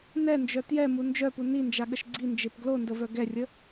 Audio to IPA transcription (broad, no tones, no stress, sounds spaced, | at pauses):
n ɛ n d͡ʒ œ t j ɛ m u n d͡ʒ œ p u n i n d͡ʒ a ɠ ə ʃ ɡ͡ǀ i n d͡ʒ e p ɡ l o n d ə v œ ɡ ɛ rʲ ə